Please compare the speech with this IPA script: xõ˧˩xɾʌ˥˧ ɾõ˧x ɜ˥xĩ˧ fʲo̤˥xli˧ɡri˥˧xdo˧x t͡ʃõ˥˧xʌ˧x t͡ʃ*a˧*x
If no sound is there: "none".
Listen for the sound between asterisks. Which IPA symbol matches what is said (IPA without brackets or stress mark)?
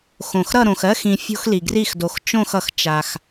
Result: a˧